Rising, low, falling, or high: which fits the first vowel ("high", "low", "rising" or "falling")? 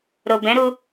low